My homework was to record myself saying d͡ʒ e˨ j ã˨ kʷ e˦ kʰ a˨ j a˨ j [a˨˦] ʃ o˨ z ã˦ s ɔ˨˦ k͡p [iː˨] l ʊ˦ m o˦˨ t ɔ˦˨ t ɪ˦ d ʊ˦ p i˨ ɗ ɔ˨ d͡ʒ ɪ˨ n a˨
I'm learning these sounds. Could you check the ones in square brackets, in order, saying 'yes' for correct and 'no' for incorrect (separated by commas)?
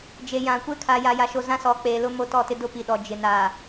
no, no